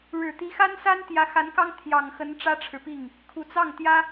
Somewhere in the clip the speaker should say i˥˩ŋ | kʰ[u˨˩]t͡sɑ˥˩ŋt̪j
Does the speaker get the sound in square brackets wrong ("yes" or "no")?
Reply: no